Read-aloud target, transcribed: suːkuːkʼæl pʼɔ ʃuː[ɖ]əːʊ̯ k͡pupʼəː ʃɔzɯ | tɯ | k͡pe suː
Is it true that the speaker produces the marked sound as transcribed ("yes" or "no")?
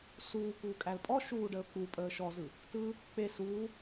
yes